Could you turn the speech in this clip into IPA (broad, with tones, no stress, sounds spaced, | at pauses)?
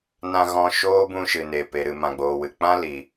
n ã˧ ɣ ɔ̃˧ ʃ oː˦ b ũ˧ ʃ ɨ˨ n e˨ p e˨ ɾ ɨ˨ m ã˨ ɡ͡b oː˨ w ɨ˨ k͡p ã˦ l i˨